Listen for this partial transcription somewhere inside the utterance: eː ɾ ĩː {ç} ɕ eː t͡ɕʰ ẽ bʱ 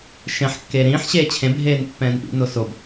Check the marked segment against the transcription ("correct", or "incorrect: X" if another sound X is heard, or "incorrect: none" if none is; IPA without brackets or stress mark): incorrect: ħ